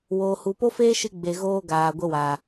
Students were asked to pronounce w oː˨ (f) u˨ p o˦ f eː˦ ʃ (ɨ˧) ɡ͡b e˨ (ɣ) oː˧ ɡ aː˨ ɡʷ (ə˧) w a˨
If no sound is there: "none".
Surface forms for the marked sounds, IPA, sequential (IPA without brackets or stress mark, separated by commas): h, ɨ˧, ɣ, ə˧